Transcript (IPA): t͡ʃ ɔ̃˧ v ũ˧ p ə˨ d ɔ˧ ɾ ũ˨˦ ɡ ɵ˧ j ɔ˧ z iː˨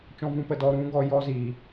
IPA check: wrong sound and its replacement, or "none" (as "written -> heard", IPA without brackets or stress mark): ɵ˧ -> ɔ˧